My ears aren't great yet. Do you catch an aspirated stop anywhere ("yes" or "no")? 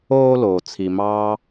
yes